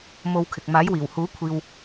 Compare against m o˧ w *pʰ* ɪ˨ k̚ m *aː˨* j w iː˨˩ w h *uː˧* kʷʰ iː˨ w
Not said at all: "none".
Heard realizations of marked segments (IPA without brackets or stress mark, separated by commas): kʰ, aː˨˥, uː˨˥